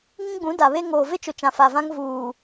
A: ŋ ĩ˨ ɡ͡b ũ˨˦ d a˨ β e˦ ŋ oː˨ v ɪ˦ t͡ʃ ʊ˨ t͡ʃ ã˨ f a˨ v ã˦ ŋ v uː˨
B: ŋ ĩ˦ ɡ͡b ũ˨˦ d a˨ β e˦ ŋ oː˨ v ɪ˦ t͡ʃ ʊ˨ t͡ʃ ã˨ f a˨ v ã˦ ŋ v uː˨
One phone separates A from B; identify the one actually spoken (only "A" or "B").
B